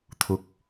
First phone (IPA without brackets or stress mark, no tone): t̪ʰ